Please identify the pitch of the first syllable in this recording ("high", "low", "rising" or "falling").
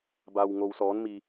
low